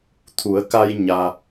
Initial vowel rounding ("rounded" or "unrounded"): rounded